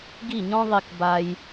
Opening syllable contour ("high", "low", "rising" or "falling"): falling